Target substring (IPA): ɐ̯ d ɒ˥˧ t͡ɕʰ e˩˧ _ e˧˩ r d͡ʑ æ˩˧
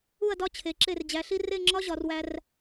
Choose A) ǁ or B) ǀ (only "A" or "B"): A